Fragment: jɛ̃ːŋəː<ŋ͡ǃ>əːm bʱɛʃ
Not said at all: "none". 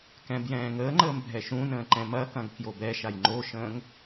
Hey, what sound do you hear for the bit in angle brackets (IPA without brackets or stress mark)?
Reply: ŋ͡ǃ